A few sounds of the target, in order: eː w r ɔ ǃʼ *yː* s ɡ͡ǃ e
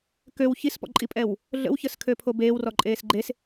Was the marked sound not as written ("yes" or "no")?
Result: yes